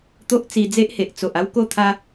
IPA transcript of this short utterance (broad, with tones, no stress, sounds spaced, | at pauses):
t̪ o˦ ʔ t͡s i˧ d͡z e˦ ʔ h e˨ ʔ t͡s o˨ ʔ a˦ w k o˥˧ t̪ʰ a˦